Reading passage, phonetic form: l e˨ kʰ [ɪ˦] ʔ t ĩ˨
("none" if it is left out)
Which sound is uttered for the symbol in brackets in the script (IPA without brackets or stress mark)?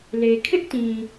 ɪ˦